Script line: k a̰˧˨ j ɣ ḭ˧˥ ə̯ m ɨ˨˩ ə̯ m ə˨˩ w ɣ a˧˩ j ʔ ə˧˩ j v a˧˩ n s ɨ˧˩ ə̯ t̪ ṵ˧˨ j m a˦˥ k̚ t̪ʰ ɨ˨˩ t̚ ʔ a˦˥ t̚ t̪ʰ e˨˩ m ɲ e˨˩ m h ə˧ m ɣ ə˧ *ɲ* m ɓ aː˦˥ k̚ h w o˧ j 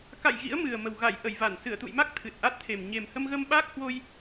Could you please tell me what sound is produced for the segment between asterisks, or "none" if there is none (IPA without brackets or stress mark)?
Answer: none